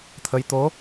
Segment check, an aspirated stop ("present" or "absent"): present